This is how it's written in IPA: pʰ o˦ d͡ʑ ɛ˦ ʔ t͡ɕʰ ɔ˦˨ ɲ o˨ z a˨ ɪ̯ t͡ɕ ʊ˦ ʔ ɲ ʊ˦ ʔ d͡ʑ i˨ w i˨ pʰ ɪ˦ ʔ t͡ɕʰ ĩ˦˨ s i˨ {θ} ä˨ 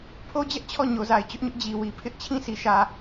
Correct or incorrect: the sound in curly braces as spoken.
incorrect: ʃ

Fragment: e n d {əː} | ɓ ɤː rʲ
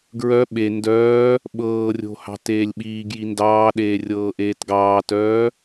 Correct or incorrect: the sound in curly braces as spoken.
incorrect: œː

